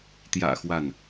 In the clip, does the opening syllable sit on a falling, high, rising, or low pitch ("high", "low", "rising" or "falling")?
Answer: low